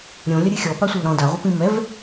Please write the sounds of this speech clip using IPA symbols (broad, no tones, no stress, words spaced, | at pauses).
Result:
ɾʲõ lʲɐɾʲɨxʲɔ pasʷɨlɾɔ̃ daʁʷɛp ĩmɛv